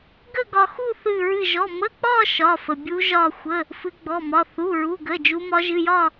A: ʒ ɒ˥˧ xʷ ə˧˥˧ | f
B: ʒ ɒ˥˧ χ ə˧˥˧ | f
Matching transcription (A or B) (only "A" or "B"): A